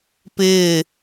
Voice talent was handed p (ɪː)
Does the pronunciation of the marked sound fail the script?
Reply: no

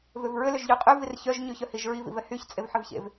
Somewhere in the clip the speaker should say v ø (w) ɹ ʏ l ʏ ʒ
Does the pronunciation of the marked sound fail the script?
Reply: yes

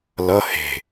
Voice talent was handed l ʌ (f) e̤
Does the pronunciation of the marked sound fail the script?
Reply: yes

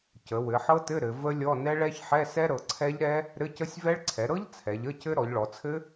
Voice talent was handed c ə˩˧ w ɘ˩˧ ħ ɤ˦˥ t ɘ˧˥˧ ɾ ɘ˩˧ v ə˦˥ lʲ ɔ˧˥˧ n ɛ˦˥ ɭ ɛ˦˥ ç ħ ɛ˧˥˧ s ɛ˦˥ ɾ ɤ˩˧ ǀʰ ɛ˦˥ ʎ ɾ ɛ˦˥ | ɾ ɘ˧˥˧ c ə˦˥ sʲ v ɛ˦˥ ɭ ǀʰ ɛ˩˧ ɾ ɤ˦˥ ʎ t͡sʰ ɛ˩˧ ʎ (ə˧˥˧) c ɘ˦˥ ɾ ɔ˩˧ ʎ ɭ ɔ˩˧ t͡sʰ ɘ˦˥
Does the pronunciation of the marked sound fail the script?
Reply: no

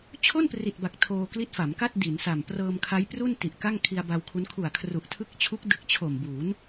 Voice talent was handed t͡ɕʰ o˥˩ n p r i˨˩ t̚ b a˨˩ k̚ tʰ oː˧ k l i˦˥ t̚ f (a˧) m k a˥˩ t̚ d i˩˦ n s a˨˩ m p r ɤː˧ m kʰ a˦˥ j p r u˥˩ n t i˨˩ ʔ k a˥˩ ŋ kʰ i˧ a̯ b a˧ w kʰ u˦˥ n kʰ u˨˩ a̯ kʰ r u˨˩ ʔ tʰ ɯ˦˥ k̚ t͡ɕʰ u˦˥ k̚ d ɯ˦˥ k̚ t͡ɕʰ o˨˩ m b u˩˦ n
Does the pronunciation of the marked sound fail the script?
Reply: yes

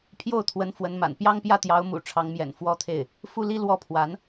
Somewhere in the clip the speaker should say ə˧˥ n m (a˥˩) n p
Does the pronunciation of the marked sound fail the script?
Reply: yes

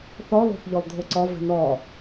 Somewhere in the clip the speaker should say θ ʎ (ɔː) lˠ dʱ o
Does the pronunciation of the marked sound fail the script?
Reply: yes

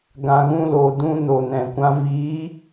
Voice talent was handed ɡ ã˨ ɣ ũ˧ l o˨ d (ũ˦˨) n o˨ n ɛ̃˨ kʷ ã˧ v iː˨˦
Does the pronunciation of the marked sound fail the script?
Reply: yes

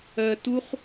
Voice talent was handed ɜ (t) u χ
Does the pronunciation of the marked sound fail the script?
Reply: no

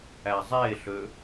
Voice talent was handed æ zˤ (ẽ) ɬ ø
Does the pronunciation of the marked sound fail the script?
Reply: yes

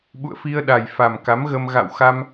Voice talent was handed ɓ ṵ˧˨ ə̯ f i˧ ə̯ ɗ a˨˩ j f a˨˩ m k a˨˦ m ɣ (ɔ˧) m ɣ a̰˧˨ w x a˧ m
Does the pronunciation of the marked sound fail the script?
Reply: yes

